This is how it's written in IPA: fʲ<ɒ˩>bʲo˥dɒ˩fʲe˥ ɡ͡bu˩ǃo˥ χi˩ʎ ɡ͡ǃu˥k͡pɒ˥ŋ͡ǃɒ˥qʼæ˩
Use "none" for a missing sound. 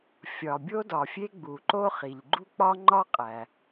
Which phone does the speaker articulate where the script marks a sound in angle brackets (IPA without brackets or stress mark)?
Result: ɒ˩